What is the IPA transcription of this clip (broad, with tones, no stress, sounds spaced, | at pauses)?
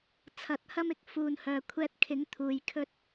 t͡sʰ ɐ˨˥ t̚ h ɐ˥ m ɪ˧ k̚ f uː˨ n h œː˨ kʷʰ ɛː˧ t̚ kʰ ɪ˨˥ ŋ t̪ʰ uː˨˧ j kʰ ɵ˥ t̚